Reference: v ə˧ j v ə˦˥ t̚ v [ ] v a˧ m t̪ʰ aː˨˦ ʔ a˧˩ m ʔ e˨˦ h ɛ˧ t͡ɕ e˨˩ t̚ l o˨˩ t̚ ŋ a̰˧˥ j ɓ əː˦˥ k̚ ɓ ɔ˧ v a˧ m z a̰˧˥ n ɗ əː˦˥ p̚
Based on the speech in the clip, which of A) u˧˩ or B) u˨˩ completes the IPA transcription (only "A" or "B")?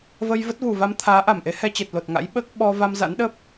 A